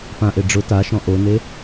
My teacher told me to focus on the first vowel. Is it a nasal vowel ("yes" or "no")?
yes